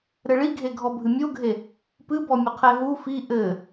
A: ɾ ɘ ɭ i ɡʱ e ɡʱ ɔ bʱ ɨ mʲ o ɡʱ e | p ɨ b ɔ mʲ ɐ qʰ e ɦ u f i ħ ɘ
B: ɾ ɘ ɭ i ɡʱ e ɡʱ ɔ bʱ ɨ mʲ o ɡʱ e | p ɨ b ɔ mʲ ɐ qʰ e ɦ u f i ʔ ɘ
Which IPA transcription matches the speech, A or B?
B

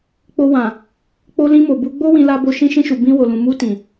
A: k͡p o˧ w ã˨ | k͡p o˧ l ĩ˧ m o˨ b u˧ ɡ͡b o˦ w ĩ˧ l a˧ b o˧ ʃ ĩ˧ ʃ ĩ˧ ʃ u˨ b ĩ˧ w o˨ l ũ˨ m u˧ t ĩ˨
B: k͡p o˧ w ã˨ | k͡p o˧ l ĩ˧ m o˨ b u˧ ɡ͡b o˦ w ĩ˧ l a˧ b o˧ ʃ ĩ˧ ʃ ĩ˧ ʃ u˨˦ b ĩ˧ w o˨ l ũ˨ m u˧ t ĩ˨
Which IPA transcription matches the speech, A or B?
A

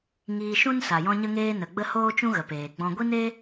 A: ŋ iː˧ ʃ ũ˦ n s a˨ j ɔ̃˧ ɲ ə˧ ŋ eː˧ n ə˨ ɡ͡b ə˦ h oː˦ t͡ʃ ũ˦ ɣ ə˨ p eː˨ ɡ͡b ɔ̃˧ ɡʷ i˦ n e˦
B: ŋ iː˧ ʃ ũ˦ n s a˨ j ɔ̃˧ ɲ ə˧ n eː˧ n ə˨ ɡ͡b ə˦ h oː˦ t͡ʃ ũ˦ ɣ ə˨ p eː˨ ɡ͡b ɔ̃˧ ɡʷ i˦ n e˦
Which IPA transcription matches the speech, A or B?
A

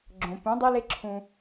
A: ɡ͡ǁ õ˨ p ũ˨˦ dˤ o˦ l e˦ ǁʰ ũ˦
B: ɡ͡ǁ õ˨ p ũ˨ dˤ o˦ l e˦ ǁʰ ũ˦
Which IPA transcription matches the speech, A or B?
A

